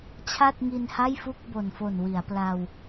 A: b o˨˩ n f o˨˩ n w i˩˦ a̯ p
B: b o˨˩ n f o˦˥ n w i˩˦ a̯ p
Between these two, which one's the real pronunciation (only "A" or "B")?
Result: A